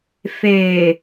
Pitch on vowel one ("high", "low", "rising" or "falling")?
low